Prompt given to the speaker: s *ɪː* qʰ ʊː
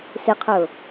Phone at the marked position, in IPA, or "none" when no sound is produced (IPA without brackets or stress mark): ɪ